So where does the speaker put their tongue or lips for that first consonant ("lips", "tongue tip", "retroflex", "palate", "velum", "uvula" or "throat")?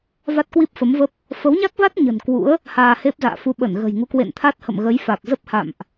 lips